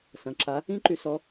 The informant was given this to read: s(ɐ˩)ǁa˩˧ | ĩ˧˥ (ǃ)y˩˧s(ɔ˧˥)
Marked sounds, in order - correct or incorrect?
incorrect: ɐ̃˩, correct, incorrect: ɔ˩˧

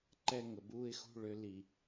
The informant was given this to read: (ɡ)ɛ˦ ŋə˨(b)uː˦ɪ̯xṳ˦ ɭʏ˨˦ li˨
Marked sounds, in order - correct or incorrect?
incorrect: ǃ, correct

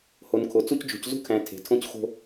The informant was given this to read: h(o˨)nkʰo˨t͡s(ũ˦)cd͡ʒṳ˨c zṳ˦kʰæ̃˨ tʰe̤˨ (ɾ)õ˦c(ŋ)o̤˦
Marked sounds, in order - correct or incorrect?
correct, incorrect: u˦, incorrect: tʰ, incorrect: x

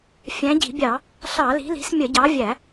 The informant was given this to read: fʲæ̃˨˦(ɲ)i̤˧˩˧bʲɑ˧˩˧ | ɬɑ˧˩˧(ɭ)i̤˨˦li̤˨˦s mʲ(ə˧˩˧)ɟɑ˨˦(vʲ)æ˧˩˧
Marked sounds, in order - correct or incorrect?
incorrect: ɟ, incorrect: l, correct, correct

